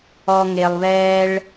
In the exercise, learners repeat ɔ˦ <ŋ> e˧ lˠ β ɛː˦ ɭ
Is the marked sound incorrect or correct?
correct